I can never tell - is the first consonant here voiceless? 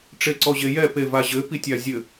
yes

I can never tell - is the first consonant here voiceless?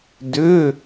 no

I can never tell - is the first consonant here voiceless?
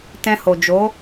yes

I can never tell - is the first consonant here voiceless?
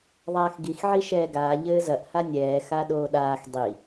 no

